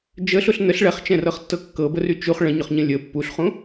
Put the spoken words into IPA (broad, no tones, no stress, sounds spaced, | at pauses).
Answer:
d͡ʒ ə ɬ ʊ ɬ n ə ɬ ɭ ɛ χ t͡ʃ ɛ̃ r ɤ χ tː ɤ kː ɤ b ə r y t͡ʃ u χ ɭ ə̃ ɲ ʊ χ ɲ ə̃ lʲ ə pː u ɬ χ ũ